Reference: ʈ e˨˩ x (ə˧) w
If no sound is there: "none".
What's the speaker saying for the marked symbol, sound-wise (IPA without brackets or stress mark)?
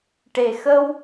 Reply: ə˧